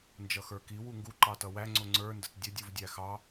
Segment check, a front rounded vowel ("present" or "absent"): absent